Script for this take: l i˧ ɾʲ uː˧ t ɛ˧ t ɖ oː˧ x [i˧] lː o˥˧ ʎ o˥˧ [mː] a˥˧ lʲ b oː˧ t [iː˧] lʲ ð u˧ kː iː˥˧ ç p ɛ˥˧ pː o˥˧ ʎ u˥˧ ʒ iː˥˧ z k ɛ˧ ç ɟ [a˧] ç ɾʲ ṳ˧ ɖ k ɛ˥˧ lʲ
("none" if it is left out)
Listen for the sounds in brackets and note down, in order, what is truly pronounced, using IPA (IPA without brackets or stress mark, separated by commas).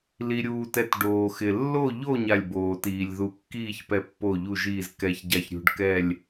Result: ɪ˧, ɲ, iː˧, a˧